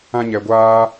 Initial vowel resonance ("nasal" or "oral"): nasal